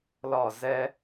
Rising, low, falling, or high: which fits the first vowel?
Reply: falling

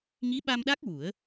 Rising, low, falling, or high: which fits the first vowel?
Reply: rising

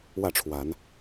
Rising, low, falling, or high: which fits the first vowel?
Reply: falling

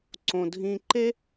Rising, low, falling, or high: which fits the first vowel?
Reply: low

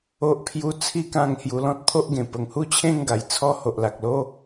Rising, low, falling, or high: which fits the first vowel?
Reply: high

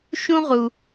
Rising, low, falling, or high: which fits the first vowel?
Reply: high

